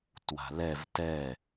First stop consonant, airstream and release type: plain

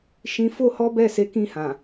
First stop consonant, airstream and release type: plain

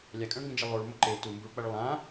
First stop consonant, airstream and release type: ejective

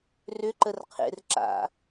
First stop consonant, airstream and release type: click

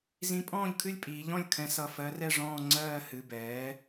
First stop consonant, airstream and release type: ejective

